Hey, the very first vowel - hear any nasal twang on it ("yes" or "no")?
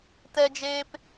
no